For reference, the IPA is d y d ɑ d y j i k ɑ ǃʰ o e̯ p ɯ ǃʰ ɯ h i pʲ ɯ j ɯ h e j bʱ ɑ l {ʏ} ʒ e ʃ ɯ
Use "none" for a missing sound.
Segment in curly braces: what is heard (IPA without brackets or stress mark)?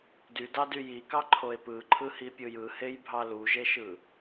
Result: u